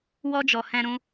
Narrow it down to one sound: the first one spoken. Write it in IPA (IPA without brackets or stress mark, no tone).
w